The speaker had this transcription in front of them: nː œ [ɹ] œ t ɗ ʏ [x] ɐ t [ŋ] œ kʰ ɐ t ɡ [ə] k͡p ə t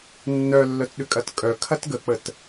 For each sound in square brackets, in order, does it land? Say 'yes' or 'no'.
no, no, no, yes

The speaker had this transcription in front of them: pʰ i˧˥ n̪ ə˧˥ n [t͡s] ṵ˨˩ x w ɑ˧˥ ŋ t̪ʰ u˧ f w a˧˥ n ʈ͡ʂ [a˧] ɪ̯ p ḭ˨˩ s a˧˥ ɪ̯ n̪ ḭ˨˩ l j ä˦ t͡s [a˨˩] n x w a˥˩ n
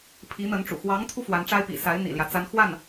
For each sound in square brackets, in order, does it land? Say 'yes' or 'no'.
no, no, no

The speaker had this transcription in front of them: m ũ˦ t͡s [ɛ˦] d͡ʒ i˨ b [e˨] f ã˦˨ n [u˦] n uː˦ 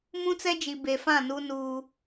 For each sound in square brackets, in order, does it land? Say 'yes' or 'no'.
yes, yes, yes

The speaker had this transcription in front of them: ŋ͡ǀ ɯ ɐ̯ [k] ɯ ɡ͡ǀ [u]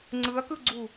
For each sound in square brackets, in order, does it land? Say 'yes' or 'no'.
yes, yes

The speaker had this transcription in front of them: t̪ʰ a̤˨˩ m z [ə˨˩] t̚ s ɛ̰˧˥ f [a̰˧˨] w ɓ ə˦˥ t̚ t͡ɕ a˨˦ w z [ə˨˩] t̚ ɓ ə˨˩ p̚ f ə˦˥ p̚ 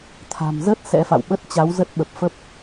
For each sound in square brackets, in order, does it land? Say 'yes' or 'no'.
no, yes, no

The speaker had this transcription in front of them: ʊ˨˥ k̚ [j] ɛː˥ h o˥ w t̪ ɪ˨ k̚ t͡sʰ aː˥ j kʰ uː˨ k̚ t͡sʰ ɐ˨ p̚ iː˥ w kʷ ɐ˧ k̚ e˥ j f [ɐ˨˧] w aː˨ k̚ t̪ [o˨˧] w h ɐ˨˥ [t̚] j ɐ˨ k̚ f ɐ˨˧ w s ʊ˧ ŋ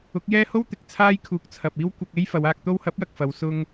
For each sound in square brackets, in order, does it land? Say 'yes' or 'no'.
yes, yes, no, no

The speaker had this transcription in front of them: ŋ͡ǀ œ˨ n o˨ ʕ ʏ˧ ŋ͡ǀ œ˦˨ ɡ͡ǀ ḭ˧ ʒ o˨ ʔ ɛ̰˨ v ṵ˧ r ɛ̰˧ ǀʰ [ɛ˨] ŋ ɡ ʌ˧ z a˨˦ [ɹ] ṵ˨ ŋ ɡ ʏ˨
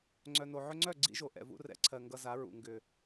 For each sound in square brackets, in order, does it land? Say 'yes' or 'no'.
no, yes

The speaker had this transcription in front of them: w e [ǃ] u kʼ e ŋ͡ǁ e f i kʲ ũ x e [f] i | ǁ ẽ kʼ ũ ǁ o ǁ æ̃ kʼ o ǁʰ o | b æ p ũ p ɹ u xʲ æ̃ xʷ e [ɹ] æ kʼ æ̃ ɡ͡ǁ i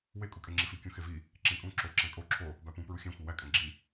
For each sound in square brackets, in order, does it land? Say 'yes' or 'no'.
no, no, no

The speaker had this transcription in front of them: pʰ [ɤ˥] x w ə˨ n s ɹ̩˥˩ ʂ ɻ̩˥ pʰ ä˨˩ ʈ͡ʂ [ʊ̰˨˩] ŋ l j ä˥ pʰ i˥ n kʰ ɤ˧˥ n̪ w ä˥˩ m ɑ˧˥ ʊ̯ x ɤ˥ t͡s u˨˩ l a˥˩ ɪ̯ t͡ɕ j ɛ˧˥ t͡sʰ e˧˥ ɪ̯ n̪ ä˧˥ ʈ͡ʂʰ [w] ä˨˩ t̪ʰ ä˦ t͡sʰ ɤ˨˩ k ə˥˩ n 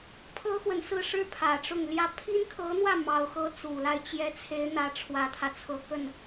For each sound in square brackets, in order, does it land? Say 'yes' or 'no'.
yes, no, yes

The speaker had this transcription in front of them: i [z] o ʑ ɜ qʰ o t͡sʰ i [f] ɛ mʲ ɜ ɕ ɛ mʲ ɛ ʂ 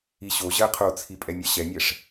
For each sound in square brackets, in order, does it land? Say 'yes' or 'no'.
no, no

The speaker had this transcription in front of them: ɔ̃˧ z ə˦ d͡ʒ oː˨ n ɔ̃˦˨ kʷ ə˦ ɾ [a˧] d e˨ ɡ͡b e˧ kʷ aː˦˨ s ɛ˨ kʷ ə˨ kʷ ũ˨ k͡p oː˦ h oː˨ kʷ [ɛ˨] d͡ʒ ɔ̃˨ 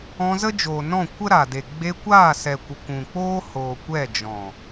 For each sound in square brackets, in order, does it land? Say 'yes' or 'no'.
no, no

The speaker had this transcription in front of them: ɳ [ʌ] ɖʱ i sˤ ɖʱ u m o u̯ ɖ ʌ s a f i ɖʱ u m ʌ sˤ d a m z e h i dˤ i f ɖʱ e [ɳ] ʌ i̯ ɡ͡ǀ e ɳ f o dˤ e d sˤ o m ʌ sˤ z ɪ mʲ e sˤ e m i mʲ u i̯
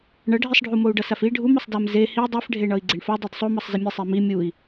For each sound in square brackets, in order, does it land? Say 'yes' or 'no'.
yes, yes

